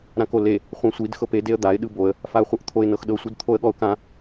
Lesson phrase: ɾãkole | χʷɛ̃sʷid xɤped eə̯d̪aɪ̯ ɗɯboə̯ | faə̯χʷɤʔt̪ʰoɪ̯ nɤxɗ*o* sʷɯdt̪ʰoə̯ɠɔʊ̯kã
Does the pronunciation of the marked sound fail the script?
yes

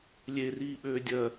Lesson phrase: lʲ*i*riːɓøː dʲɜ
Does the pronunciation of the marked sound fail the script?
yes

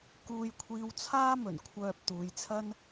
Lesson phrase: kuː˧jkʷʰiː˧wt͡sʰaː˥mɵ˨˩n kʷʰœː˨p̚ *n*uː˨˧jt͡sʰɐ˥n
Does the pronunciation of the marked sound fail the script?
yes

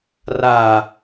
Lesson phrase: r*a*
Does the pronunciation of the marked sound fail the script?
no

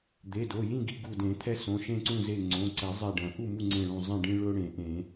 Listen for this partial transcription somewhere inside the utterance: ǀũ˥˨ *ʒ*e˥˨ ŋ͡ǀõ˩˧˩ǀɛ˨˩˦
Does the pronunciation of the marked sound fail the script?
yes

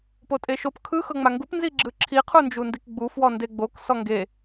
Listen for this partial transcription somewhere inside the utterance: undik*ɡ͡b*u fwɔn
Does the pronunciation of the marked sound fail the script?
no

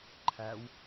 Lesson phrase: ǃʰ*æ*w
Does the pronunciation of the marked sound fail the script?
no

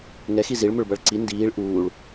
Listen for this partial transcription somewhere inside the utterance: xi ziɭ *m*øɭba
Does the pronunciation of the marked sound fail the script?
no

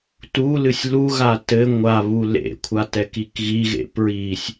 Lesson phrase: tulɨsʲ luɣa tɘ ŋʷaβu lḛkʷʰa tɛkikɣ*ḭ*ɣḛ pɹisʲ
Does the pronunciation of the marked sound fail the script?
yes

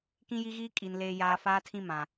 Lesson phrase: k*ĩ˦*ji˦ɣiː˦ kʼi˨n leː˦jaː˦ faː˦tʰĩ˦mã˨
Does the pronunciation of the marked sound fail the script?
no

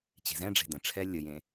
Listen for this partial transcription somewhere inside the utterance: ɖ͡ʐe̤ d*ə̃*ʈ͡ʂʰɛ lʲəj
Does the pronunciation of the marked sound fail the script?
no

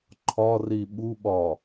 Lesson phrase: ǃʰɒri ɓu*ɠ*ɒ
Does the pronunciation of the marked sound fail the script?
yes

